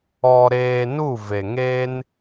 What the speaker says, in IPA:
ɔ˧ ɾ eː˧ n u˦˨ v e˨ ŋ eː˦ n

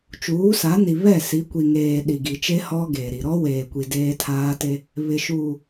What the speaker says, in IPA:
t͡ʃ uː˨˦ s a˨˦ n i˨ β ɛ˦˨ s i˨˦ kʷ i˨ ŋ eː˨ ɗ i˨ ɡ i˨ t͡ʃ e˦ h ɔ˦ ɡ e˨ ɾ i˨ ɾ ɔ˦ w eː˨ kʷ i˨ d eː˦ tʰ aː˦ t e˦ | β ɪ˨ ʃ uː˨

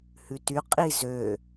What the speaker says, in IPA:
h ʉ t y qʼ i z ø

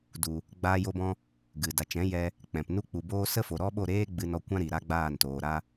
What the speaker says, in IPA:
d u˨ | ɡ͡b aː˧ j o˧ b ɔ̃˧ | ɡ ɨ˨ d a˨ t͡ʃ ɛ̃˨˦ j ɛ˧ | k͡p ɛ̃˨ p n u˧ k͡p u˨ b oː˧ s ə˦ f o˨ ɾ ɔ˦ ɓ o˦˨ ɾ eː˦ ɡ͡b ɨ˧ n ɔ˧ kʷ ã˦ ɾ i˨ ɾ a˦ ɡ͡b aː˦˨ n t oː˨ ɾ a˦

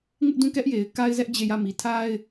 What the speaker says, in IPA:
ŋ ɪ˦ ʔ d ũ˦˨ k ɛ˦ ʔ j e˨ ɪ̯ k a˦ ɪ̯ z ɛ˦ ʔ d͡ʑ e˦˨ j ä˦˨ m i˨ tʰ a˦ ɪ̯

